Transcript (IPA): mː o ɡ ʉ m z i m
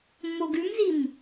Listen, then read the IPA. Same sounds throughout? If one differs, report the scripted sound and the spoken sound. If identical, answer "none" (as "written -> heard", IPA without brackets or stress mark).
none